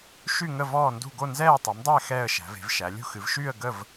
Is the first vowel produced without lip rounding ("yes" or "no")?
no